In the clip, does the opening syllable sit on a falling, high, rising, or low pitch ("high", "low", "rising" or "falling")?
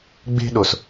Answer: high